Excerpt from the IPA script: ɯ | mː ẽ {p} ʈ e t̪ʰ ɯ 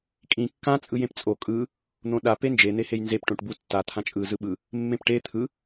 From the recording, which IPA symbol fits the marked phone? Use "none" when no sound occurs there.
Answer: p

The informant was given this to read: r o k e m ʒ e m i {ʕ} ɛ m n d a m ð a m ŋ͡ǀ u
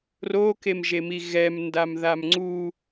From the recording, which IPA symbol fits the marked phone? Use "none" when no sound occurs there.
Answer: ɣ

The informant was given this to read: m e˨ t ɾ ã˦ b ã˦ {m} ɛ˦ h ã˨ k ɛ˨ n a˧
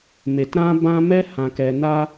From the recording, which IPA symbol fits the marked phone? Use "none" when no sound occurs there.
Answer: m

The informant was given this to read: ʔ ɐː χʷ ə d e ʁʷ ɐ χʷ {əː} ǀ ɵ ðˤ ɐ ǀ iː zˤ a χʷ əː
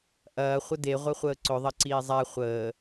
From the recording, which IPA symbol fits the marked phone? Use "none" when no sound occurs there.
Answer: əː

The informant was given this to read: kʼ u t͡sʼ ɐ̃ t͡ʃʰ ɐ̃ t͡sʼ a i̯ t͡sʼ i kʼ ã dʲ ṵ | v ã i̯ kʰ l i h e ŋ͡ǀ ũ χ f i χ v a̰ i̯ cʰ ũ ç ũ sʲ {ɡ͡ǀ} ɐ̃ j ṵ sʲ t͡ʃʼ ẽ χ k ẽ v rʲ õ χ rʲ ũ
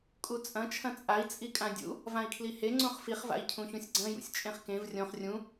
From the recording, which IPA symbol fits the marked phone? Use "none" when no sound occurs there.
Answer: ɡ͡ǀ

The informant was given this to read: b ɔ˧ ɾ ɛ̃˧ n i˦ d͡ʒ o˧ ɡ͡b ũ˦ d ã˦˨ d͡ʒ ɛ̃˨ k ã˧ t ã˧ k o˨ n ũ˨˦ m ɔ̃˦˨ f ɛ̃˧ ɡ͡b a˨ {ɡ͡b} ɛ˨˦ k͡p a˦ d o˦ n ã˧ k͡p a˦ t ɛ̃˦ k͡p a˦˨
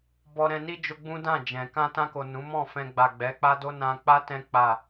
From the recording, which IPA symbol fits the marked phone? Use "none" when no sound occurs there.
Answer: ɡ͡b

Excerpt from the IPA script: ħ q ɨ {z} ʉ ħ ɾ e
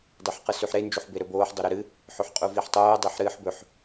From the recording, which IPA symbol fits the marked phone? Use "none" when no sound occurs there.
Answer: s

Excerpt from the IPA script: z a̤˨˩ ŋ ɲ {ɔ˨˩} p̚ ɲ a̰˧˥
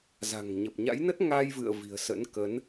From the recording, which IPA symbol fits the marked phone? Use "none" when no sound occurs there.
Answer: ə˨˩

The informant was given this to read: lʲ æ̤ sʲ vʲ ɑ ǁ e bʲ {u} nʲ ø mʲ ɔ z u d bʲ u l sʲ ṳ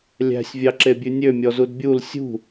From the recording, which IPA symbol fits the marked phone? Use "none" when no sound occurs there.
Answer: ʉ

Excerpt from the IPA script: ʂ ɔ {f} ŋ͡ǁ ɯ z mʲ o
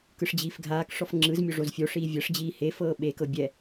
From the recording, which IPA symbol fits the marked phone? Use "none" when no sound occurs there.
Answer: f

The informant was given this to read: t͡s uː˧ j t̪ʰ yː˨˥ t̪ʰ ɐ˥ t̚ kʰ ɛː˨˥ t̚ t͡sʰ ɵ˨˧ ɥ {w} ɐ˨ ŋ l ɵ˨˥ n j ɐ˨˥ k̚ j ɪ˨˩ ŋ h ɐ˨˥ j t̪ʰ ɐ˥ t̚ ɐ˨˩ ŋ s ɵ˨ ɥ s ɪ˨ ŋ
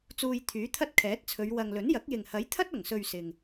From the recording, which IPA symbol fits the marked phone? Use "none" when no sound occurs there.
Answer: w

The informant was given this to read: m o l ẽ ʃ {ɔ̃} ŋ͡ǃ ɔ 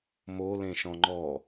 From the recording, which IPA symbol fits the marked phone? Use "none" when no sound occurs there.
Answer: ɔ̃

